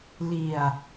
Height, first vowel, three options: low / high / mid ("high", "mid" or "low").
high